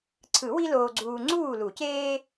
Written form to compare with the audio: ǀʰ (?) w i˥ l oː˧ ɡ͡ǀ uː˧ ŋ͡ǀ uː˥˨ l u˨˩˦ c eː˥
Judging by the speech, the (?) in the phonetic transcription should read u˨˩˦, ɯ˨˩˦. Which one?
ɯ˨˩˦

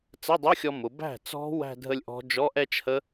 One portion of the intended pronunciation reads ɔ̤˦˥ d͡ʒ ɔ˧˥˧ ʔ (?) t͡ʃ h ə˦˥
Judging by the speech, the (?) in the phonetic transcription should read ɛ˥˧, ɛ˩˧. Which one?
ɛ˥˧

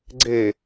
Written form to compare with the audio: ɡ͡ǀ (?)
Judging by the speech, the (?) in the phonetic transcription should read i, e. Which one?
e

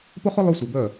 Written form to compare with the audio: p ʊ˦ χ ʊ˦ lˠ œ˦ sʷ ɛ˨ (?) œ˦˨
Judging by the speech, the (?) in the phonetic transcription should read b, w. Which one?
b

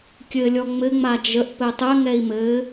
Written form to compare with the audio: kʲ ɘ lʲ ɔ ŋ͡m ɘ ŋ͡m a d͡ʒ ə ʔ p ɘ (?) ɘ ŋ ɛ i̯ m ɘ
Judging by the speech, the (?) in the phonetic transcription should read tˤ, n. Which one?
tˤ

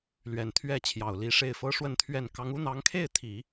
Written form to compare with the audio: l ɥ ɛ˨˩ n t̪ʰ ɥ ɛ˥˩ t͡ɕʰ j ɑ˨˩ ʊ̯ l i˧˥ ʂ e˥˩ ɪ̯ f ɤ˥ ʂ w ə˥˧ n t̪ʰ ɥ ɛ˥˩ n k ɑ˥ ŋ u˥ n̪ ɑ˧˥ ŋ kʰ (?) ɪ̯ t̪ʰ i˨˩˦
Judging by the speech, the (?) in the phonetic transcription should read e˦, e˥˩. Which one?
e˥˩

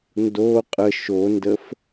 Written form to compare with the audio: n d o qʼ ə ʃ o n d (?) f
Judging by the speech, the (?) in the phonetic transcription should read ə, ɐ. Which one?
ə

